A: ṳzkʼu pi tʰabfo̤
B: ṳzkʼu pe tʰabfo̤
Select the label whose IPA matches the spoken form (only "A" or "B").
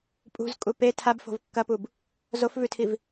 B